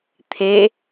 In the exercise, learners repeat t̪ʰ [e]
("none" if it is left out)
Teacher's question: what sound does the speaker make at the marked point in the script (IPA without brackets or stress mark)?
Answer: e